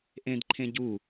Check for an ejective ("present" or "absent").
absent